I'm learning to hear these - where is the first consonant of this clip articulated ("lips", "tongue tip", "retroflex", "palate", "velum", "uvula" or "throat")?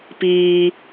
lips